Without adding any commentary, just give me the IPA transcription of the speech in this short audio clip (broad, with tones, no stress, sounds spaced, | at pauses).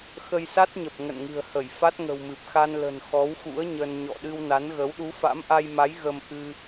x ə˧ j s a˦˥ t̚ ɲ ə˨˩ p̚ ŋ ə̰˧˨ n ŋ ɨ̤˨˩ ə̯ h ə˧˩ j f a˦˥ t̚ ŋ ə̤˨˩ w m ɨ˨˩ p̚ x a˧ n l ə̤˨˩ n x ɔ˨˦ w x ṵ˧˥ ə̯ ɲ ə˧ n ɲ ɔ̰˧˨ ɗ ɨ˧ w n a˨˦ n ɣ ə˨˦ w ɗ u˨˦ f a̰˧˥ m ʔ a˧ j m a˨˦ j ɣ ə˧ m ʔ ɨ˧